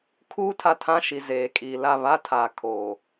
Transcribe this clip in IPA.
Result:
kʰ uː˦ tʰ a˦˨ tʰ ã˦ ʃ i˨ z eː˨ kʼ iː˨ l a˦˨ β a˦ tʰ aː˨ kʰ oː˨

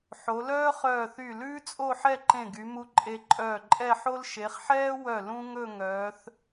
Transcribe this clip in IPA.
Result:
ħ o˩˧ l œː˥ χ œː˧˩ θ y˧˩ l ʉː˥ t͡sʼ o˥˧ ħ ɛ˥˧ ǃ ẽ˧˩ ɡ y˩˧ m u˧ ǃʼ e˧ ǃʼ œː˧˩ ǃʼ ɛ˥˧ ħ o˥ l ʃ e˩˧ χ ħ ɛː˥ w œ˧˩ l ũ˥ ŋ ɵ˥˧ ŋ œː˩˧ θ

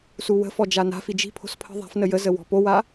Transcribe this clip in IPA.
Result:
s u w ə̤ f ɔ d͡ʒ a n a̤ f i d͡ʒ i̤ pʰ o̤ s pʰ ə̤ ðˤ a̤ f n ə j ə z ə w ɔ̤ p o w a

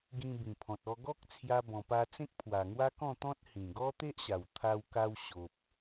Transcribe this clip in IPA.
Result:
ɡ ĩ˧ b ĩ˨˩ pʰ ɔ̃˨ t̚ ɔ˧ ɡ ɔ˦ k̚ t͡sʰ j a˧ b ɔ̃˨˩ p a˧ t͡s ẽ˦ k̚ pʰ w a˨˩ ŋ w a˦ k ɔ̃˥˧ t̪ ɔ̃˦ t̚ h ĩ˨˩ ɡ ɔ˦ t̪ e˦ ʔ ɕ a˨˩ w t̪ʰ a˧ w k a˧ w ɕ o˨ p̚

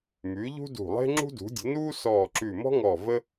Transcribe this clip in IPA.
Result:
m ʉ˩˥ ʎ ṳ˥ d ṳ˧˩ lˠ e̤˥ ŋ͡ǁ ṳ˥ d ṳ˩˥ dʲ ə̤˩˥ n uː˥ s ɔː˧˩ ǁ ʉ˧˩ m ɔ̤˥ ŋ ɔ˧˩ v ə˥

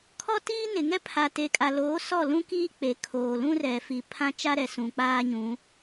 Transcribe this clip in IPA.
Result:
kʰ ɔ˦ t iː˦ n ɪ˨ ŋ ɛ˦ pʰ a˨ t e˨ kʼ a˨ l oː˨˦ s ɔ˦˨ l ũ˦ k i˦ k͡p e˨ kʰ oː˨ l ũ˦ r ɛ˨ f i˨ pʰ ã˦ t͡ʃ a˦ ɾ ɛ˨ s ũ˨ k͡p aː˦ ɲ ũ˨˦

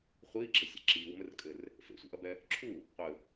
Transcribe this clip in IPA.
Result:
χʷ iː ɡ͡ǁ ɘ sʲ ɛ̰ ǁ iː w m ɘ r kʼ ɘ r | f ḛ sʷ ḭ ʔ ɐ b ɛ | ǁʰ u | qʷ ɘ

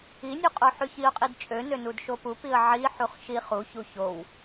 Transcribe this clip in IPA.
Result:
i nʲ u qʼ o ħ y ç i ʊ̯ qʼ i d t͡ʃʼ ø n ø n u d ʃ o p u p i ə̯ ʕ i ħ u χ ʃ i χ u ç u ç o w

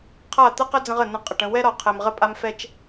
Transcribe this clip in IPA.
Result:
qʰ a˦˨ t̪ ə˦ q ə˦ d͡z ə̃˦ ʁ ə˨ n ə̃˨ qʼ ə˨ ʈ ə̃˦˨ w ɛ˦ ɾ ɒ˨ qʰ ɛ˨ m ʁ ə˦ pʼ a˦ m f ɛ˦ t͡ʃ

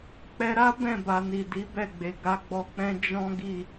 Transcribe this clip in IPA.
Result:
k͡p ɛ˧ ɾ a˦ b ɛ̃˦˨ b a˨ n i˨ d i˨˦ b ɛ˦˨ ɡ͡b e˨ ɡ a˨˦ ɡ͡b ɔ˧ k͡p ɛ̃˦ d͡ʒ ɔ̃˦ ɡ i˦˨

